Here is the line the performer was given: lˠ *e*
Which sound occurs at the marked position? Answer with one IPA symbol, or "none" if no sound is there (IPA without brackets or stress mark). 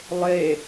e